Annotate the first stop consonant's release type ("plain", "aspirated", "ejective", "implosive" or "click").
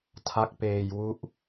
aspirated